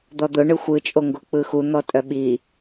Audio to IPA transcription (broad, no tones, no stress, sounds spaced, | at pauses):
d̪ ɔ d̪ ʊ ɳ ɯ xʷ ɯ t͡ʃʼ o ŋ ɡ o k͡p ɯ x u n̪ ɔ tʼ œ ɓ i